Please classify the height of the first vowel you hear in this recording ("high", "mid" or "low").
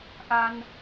low